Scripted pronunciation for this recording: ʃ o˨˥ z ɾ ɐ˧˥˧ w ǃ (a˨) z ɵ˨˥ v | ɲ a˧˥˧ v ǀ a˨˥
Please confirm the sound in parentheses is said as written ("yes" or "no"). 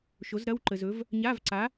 no